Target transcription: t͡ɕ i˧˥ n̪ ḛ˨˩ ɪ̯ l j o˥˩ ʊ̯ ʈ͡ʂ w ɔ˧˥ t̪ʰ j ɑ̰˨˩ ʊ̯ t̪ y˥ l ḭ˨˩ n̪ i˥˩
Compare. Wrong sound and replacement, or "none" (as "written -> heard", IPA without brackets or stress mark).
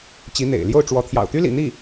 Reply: none